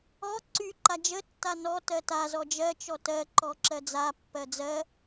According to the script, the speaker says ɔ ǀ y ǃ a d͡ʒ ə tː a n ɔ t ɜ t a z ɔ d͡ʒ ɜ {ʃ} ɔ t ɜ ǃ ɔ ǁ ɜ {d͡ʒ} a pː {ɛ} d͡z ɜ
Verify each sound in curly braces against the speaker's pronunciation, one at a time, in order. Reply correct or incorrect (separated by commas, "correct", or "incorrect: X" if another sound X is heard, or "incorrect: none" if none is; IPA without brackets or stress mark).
incorrect: t͡ʃ, incorrect: d͡z, incorrect: ɜ